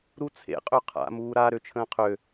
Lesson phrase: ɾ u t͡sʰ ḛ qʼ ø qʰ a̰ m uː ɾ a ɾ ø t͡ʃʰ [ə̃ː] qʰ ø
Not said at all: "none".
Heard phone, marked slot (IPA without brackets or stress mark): ə̃ː